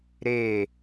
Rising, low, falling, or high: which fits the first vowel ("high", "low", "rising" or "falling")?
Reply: falling